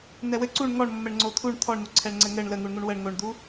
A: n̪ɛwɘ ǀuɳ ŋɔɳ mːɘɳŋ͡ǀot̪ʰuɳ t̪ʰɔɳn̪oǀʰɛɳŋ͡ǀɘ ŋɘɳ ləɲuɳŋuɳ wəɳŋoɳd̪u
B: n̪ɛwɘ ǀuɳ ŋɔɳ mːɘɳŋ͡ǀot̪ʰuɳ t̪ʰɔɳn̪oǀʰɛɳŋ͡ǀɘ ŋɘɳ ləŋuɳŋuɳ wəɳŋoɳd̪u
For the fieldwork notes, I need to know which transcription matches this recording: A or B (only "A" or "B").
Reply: B